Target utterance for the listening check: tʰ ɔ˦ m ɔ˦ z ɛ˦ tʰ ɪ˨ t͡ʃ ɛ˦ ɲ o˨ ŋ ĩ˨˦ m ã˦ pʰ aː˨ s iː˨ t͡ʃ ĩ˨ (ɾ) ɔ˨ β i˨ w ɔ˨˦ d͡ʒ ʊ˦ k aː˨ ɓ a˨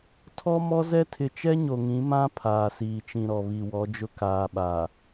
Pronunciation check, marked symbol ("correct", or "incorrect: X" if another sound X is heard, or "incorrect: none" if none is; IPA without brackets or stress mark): correct